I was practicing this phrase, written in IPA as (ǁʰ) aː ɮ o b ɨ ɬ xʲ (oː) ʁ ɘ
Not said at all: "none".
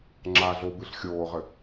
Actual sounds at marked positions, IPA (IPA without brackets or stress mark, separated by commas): ŋ͡ǁ, oː